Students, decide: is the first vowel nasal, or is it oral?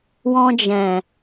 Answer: nasal